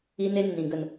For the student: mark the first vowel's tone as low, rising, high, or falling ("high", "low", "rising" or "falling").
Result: high